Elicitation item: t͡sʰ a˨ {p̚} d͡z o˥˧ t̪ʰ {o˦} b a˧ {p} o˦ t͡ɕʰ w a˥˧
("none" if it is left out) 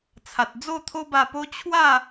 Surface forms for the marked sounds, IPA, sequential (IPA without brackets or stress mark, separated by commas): t̚, o˦, p